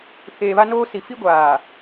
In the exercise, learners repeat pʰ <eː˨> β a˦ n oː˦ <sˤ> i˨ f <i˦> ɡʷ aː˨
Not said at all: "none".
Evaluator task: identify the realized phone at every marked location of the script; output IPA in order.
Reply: eː˨, s, i˦

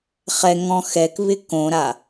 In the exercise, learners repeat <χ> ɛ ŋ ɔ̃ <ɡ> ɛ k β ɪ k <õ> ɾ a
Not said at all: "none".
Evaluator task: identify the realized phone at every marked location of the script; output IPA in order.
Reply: χ, x, õ

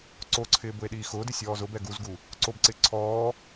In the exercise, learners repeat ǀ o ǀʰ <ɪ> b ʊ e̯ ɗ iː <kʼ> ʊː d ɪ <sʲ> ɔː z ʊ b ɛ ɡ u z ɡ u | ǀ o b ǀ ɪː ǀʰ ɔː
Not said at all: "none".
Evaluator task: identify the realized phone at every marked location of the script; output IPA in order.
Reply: ɪː, x, sʲ

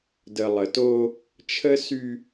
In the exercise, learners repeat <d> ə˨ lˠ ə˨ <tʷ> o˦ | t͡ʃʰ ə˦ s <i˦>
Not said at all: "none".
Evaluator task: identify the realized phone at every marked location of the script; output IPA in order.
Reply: d, t, y˦

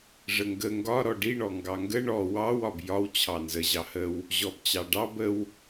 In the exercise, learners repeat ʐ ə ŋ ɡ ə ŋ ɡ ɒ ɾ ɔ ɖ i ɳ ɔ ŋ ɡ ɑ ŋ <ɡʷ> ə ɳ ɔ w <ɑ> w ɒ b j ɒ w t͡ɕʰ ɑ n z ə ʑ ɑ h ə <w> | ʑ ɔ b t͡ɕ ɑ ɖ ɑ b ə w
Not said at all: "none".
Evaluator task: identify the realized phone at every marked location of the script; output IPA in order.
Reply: ɡ, ɑ, w

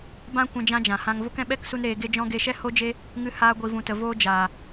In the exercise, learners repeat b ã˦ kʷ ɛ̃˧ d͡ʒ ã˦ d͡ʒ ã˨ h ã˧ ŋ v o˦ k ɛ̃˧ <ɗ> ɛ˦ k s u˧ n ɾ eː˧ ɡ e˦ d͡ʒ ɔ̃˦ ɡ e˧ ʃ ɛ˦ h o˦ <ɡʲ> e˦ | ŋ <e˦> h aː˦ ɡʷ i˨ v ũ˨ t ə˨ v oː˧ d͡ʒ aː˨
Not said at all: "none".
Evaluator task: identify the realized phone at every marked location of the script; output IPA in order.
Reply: ɓ, d͡ʒ, ɨ˦

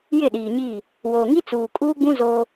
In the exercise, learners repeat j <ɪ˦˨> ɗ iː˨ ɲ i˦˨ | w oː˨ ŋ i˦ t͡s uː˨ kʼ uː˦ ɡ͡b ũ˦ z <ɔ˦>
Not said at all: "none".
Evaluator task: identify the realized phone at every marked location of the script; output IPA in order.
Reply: ɪ˦˨, o˦

